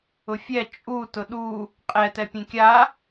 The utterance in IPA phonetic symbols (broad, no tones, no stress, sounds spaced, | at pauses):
ʊ fʲ ɛ t͡ʃʼ u t ʊ ɗ u | qʼ ɛ t ɛ pʲ ẽ kʲ a